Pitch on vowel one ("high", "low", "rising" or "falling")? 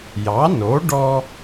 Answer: rising